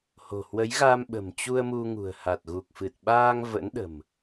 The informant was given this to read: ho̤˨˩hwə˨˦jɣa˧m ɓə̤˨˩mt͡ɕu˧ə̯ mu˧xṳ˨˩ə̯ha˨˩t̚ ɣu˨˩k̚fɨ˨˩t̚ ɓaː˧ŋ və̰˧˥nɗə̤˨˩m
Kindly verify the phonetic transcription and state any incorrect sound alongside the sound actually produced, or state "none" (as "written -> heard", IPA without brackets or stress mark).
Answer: x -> ŋ